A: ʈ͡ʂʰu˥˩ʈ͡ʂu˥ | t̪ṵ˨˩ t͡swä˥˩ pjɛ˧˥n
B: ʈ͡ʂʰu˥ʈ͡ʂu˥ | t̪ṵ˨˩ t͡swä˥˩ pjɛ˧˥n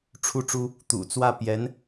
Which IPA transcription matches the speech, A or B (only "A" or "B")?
A